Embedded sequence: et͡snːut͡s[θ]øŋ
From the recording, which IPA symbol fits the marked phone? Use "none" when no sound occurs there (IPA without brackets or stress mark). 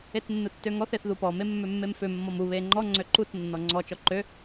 t